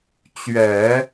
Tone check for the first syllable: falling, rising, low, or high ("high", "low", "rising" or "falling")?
low